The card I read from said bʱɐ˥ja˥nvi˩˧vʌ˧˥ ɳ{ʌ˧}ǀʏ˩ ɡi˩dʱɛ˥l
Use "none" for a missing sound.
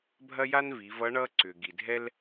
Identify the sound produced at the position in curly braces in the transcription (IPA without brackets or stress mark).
ʌ˥